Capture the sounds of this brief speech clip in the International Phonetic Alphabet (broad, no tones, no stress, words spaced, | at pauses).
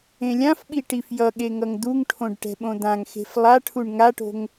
ẽlʲãfɓi ʈifjʌɠe ŋʌŋd̪uŋʈʰõɖ ʈɛ̤ɓõd̪ãŋxe̤f lˠaʈʰuɳ ŋaʈo̤ŋ